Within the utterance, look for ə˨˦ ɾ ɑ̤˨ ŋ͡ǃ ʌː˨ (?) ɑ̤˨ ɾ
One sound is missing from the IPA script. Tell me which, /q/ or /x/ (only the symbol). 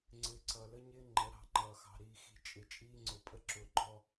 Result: x